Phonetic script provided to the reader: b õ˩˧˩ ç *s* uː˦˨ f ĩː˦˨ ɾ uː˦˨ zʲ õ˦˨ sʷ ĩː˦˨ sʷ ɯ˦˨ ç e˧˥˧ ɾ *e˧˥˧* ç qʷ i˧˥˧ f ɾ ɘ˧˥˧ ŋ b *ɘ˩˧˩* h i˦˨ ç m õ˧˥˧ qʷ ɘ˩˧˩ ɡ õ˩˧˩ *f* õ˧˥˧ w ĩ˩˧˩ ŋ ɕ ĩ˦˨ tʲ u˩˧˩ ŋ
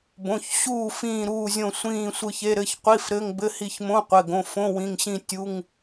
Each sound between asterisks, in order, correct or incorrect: incorrect, incorrect, incorrect, correct

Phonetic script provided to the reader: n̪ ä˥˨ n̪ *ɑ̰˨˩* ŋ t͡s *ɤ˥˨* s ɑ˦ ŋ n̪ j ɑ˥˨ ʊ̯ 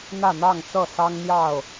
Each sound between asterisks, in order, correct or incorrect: incorrect, correct

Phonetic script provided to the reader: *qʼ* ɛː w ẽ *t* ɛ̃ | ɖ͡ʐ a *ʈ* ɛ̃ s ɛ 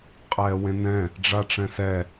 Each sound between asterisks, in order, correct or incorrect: correct, incorrect, incorrect

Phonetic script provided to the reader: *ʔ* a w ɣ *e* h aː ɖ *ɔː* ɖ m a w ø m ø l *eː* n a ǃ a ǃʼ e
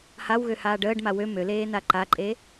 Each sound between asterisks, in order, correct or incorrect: incorrect, incorrect, incorrect, correct

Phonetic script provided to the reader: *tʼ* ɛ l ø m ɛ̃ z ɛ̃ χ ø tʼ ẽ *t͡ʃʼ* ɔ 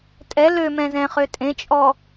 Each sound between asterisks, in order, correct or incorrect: correct, correct

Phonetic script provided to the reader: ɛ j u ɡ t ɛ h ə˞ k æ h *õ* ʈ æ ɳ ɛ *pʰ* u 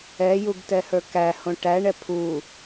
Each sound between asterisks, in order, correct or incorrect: correct, correct

